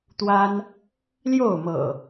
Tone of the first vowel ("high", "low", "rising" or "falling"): high